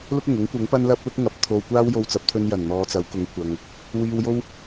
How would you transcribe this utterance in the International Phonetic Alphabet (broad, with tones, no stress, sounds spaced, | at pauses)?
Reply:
l ʊ˥ k̚ ʊ˨˩ ŋ ʊ˨˥ ŋ kʷ ɐ˨˥ ŋ p ɐ˥ n l ɐ˥ p̚ l ʊ˥ k̚ ŋ ɐ˨˥ p̚ t̪ʰ o˧ w kʷ aː˥ w j o˧ w t͡s ɐ˨˥ p̚ t̪ʰ ɵ˧ n j ɐ˨˩ n n̪ ɔː˨ t͡s ɐ˨˥ w k ʊ˨˥ ŋ kʷ ɐ˨ ŋ | w iː˧ w j o˥ w